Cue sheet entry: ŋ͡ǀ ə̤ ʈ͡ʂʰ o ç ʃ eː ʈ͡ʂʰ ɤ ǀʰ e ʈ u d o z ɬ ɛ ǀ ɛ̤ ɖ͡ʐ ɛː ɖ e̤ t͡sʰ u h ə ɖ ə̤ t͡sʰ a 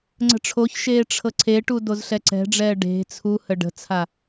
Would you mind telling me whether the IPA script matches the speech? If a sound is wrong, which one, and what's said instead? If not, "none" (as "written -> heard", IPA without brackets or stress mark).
none